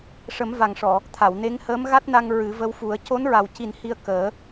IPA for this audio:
ʂ ə˨˩˦ m v a˨˩ ŋ ʂ ɔ˨˩˨ | t̪ʰ a˨˩˨ w n e˧˥ ŋ h əː˧˥ m ɣ a˦˥ t̚ n a˧ ŋ ɹ ɨ˨˩˦ v ə˧˥ w f u˨˩˦ ə̯ c o˧˥ n ɹ a˨˩ w c i˨˩ n h i˧ ə̯ k əː˨˩˦

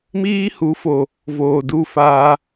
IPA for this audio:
m iː˦ h u˨˦ f o˨ | v oː˨ d u˦˨ f aː˧

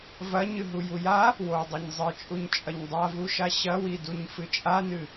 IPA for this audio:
v ɐ ɲ ɨ ɦ u j u j a | w o dˤ ɐ ɲ zˤ ɨ t͡ʃʼ u ɲ t͡ʃʼ ɐ ɲ dˤ a v u ʃ a ɕ ɐ w i d u ɲ f ɨ t͡ʃʼ a n ɨ

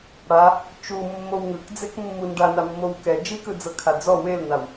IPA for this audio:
ɽ a | t͡ʃ u mː o w ŋ ɯ k d͡z e k mː u n ɖ a n a mː o w k ɛ d͡ʒ i k ɯ d͡z ɤ kʰ a d͡z ɔ w e l n a w

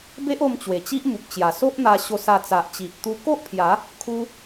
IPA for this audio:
b e˦ ʔ o˧ m t͡ɕ w e˨˩ t͡ɕ i˦ ʔ m u˨ p̚ t͡ɕ j a˨˩ s o˦ ʔ n̪ a˧ ɕ o˧ s a˧ t͡s a˨ ʔ t͡ɕ i˨ ʔ t̪ u˧ k o˦ ʔ pʰ j a˨˦ | kʰ u˧

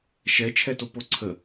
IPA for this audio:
ʃ ɛ t͡ʃʰ ɛ t o p o ǀʰ ə

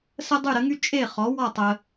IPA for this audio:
s ə˥ dˤ y˥˩ ɾ ə˩˥ ŋ y˥ t͡ʃʼ e˥˩ χ ɔ˩˥ w ɔ˥˩ tˤ ə˩

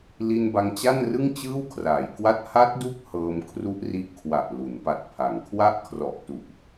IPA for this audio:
l i˧ n b a˧ ŋ t͡ɕ a˥˩ n r ɯ˥˩ ŋ t͡ɕ ɯː˥˩ w kʰ r aː˩˦ j k w a˥˩ t̚ h a˦˥ t̚ d u˦˥ k̚ h ɤː˧ m kʰ r u˦˥ ʔ r i˦˥ ʔ kʰ w a˨˩ ʔ l u˩˦ n p a˨˩ t̚ pʰ a˩˦ ŋ kʰ w a˥˩ ʔ kʰ r ɔ˨˩ ʔ t u˨˩ ʔ

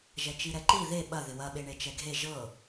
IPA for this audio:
ʒ ɛ t͡ʃ i ɾ ɛ ǃ i ð e ɓ ɐ ð ɪ w ɐ ɓ e ɳ e t͡ʃ ɛ ɡʱ e ʒ ɤ

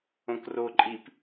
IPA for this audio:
õ k r o ǃʼ i p

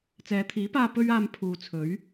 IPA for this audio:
t͡s ɛː˨˧ t̪ʰ iː˨˥ p aː˧ p ɵ˥ ɥ aː˧ m pʰ uː˨ t͡sʰ ɵ˨˥ ɥ

